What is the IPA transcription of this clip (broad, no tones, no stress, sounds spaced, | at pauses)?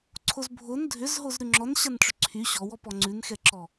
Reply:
ǀʰ o z bʱ o n dʱ ʏ z ɦ o z ɾ ʉ ŋ͡ǁ ɔ n ɕ a n ʈ͡ʂ ʏ ǀʰ y ɕ ɔ w ɔ p ɔ ŋ͡ǀ ʉ n x ɛ ǁ ɔ